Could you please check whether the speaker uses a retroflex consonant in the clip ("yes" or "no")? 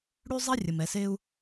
yes